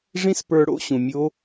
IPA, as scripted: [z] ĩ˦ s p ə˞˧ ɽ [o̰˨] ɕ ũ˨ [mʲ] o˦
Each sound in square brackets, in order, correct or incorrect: incorrect: ʐ, incorrect: o̰˦, correct

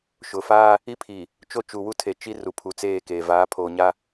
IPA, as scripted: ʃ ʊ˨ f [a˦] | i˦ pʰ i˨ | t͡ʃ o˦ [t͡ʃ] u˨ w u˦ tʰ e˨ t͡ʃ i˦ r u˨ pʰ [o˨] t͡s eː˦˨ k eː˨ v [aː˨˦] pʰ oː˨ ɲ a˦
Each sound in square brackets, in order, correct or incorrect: incorrect: aː˦, correct, incorrect: u˨, correct

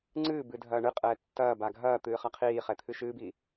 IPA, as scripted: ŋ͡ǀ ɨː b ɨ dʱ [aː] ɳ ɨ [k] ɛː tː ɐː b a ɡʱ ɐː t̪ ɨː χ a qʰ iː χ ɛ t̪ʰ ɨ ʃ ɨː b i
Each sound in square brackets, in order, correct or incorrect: incorrect: ɐː, incorrect: qʼ

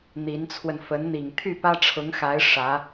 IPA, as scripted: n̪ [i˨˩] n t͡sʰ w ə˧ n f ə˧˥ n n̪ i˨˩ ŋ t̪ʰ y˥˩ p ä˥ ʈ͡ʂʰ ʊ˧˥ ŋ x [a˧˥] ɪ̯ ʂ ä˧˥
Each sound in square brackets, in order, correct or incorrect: incorrect: i˧˥, correct

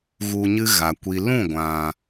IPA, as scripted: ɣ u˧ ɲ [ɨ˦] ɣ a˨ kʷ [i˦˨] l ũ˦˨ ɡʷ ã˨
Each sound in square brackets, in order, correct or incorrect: correct, incorrect: i˨

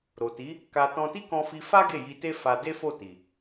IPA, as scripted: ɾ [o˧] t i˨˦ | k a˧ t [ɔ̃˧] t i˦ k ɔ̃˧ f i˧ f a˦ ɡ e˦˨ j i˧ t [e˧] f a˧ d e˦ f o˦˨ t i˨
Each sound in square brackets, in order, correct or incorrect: incorrect: o˨, correct, incorrect: e˦

